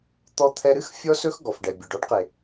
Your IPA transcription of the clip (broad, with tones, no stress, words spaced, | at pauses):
t̪ɔ˧t̪ʰɛ˧ɾɨ˦x fʲɔ˦ sɵ˦xɡɔ˨fɖɛ˨ bʲɵ˨ɖ ɔ˦ɖqe˨